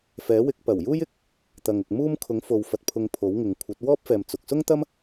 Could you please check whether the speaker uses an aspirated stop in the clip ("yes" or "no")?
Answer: yes